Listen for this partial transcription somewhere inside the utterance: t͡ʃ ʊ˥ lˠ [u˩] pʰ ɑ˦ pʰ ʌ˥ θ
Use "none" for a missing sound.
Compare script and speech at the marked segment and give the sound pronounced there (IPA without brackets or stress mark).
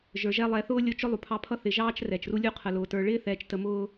u˩